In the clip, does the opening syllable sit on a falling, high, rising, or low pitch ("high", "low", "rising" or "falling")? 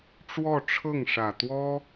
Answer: falling